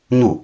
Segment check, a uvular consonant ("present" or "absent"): absent